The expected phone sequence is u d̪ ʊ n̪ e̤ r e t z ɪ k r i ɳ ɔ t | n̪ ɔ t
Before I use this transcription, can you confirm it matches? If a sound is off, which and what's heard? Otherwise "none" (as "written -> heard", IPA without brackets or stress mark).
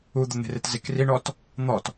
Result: none